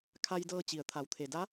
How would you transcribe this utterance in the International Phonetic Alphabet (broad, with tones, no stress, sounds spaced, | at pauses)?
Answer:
kʰ a˧ j d ɤː˧ t͡ɕ i˩ ə̯ t̪ʰ a˩˧ w t̪ʰ e˩ d a˧˥